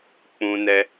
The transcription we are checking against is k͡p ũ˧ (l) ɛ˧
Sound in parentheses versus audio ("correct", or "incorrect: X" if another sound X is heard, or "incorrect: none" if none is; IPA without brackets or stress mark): incorrect: n